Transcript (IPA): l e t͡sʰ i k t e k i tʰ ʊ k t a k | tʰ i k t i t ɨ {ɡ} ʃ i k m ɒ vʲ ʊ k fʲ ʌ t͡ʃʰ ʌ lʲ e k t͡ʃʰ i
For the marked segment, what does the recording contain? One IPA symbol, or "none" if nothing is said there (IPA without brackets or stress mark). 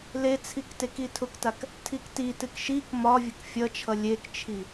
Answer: k